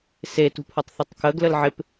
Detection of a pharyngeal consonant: present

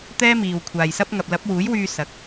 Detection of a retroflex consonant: absent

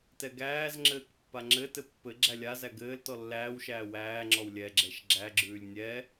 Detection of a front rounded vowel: absent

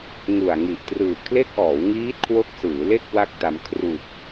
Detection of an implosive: absent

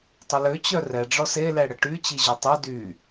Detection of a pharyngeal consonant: absent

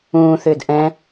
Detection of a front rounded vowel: present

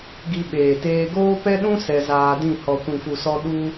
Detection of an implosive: present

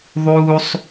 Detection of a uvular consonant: absent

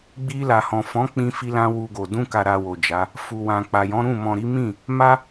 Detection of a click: absent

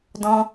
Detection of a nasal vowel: present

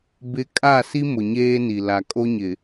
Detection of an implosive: absent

